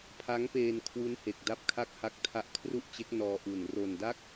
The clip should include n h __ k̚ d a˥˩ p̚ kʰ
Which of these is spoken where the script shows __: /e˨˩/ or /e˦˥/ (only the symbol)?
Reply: e˨˩